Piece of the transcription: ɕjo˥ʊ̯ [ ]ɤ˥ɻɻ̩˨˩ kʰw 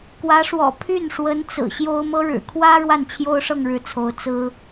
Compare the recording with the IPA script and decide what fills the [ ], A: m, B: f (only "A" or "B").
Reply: A